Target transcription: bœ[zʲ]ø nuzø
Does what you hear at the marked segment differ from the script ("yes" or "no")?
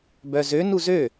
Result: yes